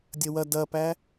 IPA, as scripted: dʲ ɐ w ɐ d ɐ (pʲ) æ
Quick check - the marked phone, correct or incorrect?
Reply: incorrect